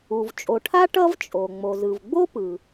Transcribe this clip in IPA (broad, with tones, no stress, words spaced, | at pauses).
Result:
u˩v t͡ʃʼo˩ʈʰa˥ ʈʌ˥vt͡ʃʼo˩ ŋ͡mo˩zɯ˩v ɡ͡bo˥pɯ˩